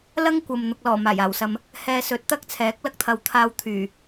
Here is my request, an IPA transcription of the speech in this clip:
l ɐ˥ ŋ kʷ ɐ˨ m n̪ ʊ˨ k̚ l ɔː˨˩ m aː˨˩ j aː˨˩ w s ɐ˨ m | h ɛː˧ s ɵ˨˥ t̚ t̪ ɐ˥ k̚ t͡sʰ ɛː˨˥ k̚ l ɐ˥ k̚ t̪ʰ ɐ˨˧ w t̪ʰ aː˧ w t̪ʰ yː˨˩

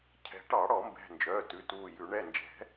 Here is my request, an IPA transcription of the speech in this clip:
cʰ ɛ̤˨˩˦ ʈ ɑ˨˩˦ ɽ ɔ˨˩˦ m b ɛ̤˩˧˩ n d͡ʒ œː˩˧˩ t ʉ˩˧˩ t uː˧˩ j ʉ˨˩˦ ɳ ɛ˩˧˩ n d͡ʒ ɛ̤˨˩˦

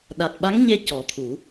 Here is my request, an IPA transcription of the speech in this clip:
ɗ a˨˩ t̚ ɓ a˧˥ ŋ ɲ e˧ c ɔ˨˩˦ t̪ʰ u˨˩˦

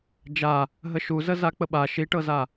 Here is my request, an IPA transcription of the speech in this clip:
d͡ʒ a | ɦ ə ʃ u z ə z a k͡p ə ɓ a ʃ i ʈ ɤ z a

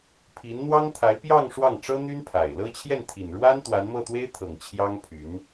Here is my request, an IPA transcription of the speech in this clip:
pʰ i˧˥ n n̪ w ɑ˥ ŋ t̪ʰ a˧˥ ɪ̯ p j ɑ˥˧ ŋ ʂ w ɑ˥˩ ŋ ʈ͡ʂ ɤ˥ n̪ y˥ n pʰ a˨˩ ɪ̯ l ɤ˥ t͡ɕʰ j ɛ˥˩ n t̪ʰ i˨˩ n ɻ w a˥ n t̪ w a˧˥ n m ɤ˥˩ t̪ w e˥ ɪ̯ t̪ʰ ɤ˨˩ ŋ t͡ɕʰ j ɑ˥ ŋ pʰ y˧˥ n

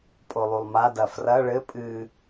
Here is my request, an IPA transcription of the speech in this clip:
pʼ o lˠ u lˠ m a d ɐ f r ɐ ɭ ɘ pʼ ɨ

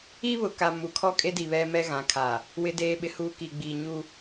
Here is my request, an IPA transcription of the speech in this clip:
i˦ β ʊ˨ k a˨ m u˨ kʰ ɔ˦ kʼ e˦ d i˨ β ɛ˦ m ɛ˦ ɣ ã˨˦ kʰ a˨ | w ɪ˦ d eː˦ ɓ ɪ˦ h uː˦ k i˨ ɡ͡b iː˨ ɲ u˦

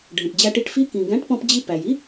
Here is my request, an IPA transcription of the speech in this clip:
ɖʱ ɛ̃˩ ʈ d͡ʑ æ˧ ʈ i˧ ʈ f i˦˥ k ĩ˩ ɡ æ̃˨˥ ʈ p ɔ̃˧ p d͡ʑ i˧ p æ˩ j i˦˥

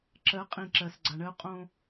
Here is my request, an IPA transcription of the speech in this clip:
ǁ ɜ˨˦ qʼ ĩ˨ ǁ ɜ˨ s ɡ͡ǀ a˨ ɳ ɜ˦ ʊ̯ qʼ õ˦

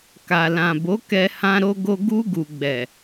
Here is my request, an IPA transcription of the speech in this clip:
k a˨ l ã˨ b o˨˦ k ɛ˧ h ã˧ ɾ o˧ ɡ o˧ ɡ u˧ ɡ u˨ ɡ͡b ɛ˨

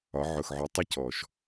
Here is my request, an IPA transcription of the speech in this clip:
ɒ˩˧ ʕ ʊ˩ x ʕ ʊ˩˧ tˤ ɛ˧ c ɔ˩ ʃ

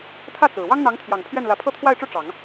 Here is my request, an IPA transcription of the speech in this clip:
t̪ʰ ä˥˩ t͡s ɹ̩˨˩ w ɑ˥ ŋ n̪ ɑ˧˥ ŋ t̪ʰ j ɑ˨˩ ŋ pʰ ɥ ɛ˥˩ n l ä˧˥ pʰ ɤ˥˧ t̪ʰ w a˥˧ ɪ̯ ʈ͡ʂ u˥˩ ʈ͡ʂ ɑ˨˩˦ ŋ

